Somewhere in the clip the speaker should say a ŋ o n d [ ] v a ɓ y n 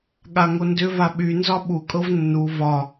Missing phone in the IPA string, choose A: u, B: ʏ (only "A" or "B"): B